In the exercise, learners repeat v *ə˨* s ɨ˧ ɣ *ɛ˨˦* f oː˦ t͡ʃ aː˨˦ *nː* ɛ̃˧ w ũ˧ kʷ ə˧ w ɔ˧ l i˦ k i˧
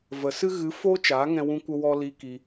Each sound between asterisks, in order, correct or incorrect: correct, incorrect: ɨ˨˦, incorrect: ŋ

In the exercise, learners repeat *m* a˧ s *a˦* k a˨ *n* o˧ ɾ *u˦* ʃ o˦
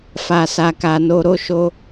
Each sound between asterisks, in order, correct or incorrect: incorrect: f, incorrect: a˨, correct, incorrect: o˦

